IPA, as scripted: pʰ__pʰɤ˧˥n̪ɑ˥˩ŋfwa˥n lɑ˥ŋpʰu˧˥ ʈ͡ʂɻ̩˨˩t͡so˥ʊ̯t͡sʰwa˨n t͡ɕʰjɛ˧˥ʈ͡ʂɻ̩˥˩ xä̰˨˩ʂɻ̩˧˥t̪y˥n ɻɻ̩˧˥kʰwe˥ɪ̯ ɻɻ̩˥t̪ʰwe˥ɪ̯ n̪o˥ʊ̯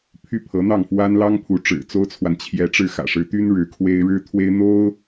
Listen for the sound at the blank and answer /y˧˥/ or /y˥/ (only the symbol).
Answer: y˥